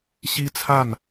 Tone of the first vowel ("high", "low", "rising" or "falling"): high